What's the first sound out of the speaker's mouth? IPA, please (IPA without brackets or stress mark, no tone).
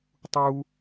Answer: tˤ